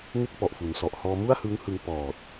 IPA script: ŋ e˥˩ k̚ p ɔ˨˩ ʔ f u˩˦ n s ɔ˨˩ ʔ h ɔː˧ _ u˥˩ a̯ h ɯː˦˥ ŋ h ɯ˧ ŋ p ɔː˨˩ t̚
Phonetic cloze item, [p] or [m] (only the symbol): m